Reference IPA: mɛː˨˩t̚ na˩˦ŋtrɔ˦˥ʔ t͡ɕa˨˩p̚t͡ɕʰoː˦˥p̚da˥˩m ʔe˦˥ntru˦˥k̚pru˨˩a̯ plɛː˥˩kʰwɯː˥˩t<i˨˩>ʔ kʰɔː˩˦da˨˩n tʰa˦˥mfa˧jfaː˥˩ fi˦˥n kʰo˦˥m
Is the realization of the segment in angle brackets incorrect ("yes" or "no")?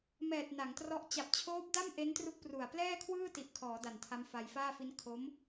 no